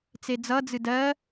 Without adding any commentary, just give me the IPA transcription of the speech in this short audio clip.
t͡s e d͡z ʌ d͡z ɨ d ɜ

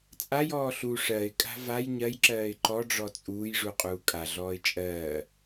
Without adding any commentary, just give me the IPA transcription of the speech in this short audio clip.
t͡sʼ a j ɔː ɬ u ʂ ɜ ɪ̯ kʼ a̤ v a j ɲ ɜ j ǁ ɜː ɪ̯ ǃ ɔ ɖ͡ʐ ɔ t͡sʼ uː j ʐ u qʼ uː kʼ a ɮ ɔː ɪ̯ t͡ʃʼ ɜː

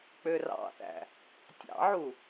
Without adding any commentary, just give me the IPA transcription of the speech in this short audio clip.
k͡p ø r ɑ̰ θ æ̰ | tʲ ɑ̰ ʕ u

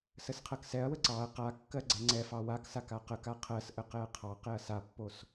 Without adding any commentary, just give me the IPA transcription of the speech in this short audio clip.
s ə s qʰ ɜ k s ɛ ɐ̯ w ə ǀ ɑ ɐ̯ q a kː ɜ ɡ͡ǀ ɛ ŋ͡ǀ ɛ f ɑ w a k s a k a q ə k a qʰ ɜ s ʔ ə q ɛ ɐ̯ qʰ ɑ q ɛ ɐ̯ s a pː o s

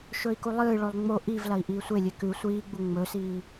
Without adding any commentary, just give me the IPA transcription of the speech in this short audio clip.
ʃ ɵ i̯ k u lˠ ɨː ɭ o lˠ ŋ͡m o ʔ i v l ɐ i̯ ʔ iː sʷ e lʲ e k ʉ sʷ iː ɡ͡b u ŋ͡m ɵ s iː

